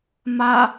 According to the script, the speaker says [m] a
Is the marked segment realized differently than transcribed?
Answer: no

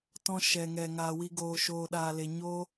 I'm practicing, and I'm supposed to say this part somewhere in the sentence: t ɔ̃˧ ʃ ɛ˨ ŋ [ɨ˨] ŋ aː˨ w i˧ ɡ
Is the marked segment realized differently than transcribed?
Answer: yes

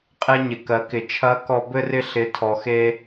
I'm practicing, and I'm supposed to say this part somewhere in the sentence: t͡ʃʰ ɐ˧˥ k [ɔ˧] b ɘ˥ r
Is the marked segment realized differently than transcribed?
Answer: no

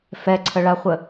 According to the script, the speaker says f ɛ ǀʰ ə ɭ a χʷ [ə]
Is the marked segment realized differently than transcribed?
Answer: no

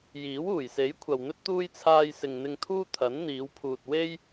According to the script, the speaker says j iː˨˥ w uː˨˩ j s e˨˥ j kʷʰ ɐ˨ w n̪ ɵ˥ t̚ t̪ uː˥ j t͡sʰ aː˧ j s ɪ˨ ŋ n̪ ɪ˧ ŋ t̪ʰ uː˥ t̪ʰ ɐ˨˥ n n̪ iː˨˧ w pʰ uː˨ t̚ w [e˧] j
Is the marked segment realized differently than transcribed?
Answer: yes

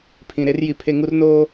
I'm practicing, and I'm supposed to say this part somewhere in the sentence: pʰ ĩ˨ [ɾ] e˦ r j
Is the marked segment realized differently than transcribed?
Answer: no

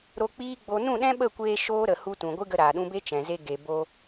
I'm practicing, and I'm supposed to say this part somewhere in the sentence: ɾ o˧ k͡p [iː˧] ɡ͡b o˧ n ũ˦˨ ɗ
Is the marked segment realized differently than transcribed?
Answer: yes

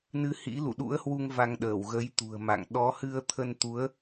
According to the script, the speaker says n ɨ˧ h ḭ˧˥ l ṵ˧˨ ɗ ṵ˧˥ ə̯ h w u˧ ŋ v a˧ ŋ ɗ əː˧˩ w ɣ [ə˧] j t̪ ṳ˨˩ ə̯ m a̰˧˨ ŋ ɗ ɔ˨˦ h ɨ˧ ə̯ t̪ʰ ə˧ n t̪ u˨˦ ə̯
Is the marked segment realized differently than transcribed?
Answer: yes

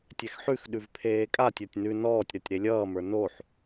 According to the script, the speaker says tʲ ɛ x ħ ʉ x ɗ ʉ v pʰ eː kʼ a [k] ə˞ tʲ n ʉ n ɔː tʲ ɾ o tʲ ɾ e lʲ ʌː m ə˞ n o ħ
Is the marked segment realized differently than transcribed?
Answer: yes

